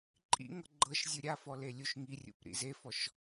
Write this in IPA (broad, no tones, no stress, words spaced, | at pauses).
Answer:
ǃʼḭŋɤ ɡ͡ǃɤʃzʲɯ ɾʲafɔ lelʲuʃŋirʲṵp ɾḭzefɔʃ